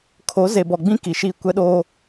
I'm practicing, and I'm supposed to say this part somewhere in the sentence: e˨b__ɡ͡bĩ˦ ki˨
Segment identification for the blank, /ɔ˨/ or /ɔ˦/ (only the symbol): ɔ˨